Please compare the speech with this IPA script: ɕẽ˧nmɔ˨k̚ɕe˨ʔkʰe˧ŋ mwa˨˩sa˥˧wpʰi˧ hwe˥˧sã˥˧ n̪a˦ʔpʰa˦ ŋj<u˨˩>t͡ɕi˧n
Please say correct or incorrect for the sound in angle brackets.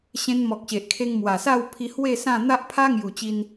correct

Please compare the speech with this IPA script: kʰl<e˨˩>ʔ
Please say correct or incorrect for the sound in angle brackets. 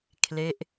incorrect: e˦˥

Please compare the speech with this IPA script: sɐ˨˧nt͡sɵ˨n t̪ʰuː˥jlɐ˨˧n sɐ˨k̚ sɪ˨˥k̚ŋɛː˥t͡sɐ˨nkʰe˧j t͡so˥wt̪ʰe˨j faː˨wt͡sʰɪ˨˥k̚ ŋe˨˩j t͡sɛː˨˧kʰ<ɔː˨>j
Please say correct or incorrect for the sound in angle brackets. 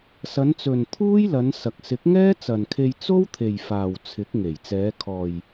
correct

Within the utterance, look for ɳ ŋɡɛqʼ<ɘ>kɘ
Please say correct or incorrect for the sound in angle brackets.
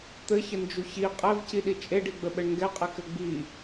incorrect: ɛ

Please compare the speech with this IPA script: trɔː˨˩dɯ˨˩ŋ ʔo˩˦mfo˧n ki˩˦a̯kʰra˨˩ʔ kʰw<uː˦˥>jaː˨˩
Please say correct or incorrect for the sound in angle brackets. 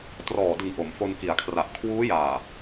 correct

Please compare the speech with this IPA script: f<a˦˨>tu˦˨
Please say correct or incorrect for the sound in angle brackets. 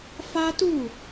incorrect: a˦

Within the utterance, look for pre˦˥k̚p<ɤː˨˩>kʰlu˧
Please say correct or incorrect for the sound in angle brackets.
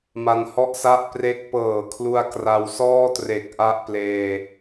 correct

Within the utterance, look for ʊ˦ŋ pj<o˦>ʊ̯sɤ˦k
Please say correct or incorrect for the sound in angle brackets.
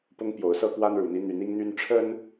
incorrect: o˨˦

